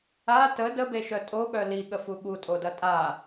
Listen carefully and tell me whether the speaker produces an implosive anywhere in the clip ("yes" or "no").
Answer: yes